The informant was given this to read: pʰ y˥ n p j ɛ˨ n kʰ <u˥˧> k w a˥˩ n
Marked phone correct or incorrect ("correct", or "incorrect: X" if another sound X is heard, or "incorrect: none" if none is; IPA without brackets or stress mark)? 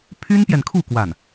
correct